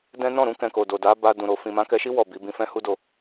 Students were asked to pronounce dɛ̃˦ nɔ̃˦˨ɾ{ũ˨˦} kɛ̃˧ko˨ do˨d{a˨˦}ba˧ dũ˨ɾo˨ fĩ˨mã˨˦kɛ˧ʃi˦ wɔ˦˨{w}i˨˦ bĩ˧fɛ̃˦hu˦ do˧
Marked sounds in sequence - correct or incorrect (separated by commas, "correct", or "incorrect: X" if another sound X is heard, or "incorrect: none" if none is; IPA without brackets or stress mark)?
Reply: correct, correct, incorrect: b